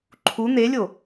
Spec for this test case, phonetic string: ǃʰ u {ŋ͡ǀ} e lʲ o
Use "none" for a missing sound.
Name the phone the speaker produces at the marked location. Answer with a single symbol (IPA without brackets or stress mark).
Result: n̪